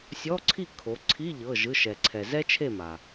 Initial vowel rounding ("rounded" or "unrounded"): rounded